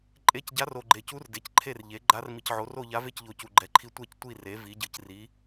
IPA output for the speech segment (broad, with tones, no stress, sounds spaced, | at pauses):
ǃʼ e˧˥ c ɟ a˧˥ r o˨ ɡ͡ǃ e˨ c u˧˥ r d e˩˥ c ǃʰ e˥˨ r ʎ e˩˥ ɡ͡ǃ a˧˥ r m i˨ c ʕ o˩˥ r o˥˨ ʎ a˧˥ v e˥˨ c ʎ o˨ c u˨ ɡ͡ǃ ɛ˨ ǃʰ i˧˥ tʷ ɛ˥˨ c tʷ i˥˨ r e˩˥ v i˩˥ ɟ ɯ˨ c r i˩˥